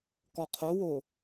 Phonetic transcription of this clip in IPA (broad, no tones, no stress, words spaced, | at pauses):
kɔqʰowo